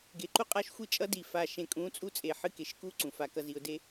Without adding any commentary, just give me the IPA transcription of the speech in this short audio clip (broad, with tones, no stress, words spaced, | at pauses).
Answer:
ɡe˨ǃu˦ qʼa˦ʃxʷɨ˦t͡ʃʼʌ˦ di˨ fa˨ʃẽ˨kʼũ˨˦ t͡sʼu˦t͡sʼe˨ħɨ˦ke˨ʃ ku˦ ǀũ˨fa˦kʌ˦ zi˨ʊ̯ de˦